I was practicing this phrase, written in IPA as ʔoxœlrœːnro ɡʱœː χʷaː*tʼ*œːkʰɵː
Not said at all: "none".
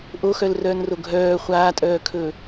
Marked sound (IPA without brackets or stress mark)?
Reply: tʼ